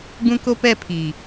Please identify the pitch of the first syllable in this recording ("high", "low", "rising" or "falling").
high